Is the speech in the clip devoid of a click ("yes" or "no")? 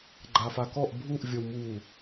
no